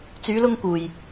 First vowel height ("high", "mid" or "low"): high